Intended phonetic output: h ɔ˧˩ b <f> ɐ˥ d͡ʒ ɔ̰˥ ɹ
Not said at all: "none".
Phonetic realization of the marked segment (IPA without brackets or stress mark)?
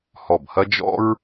h